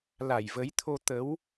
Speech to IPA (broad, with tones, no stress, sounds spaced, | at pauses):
l a˧˩ j v ə˨˦ j t̪ʰ o˧ t̪ ə˨˦ w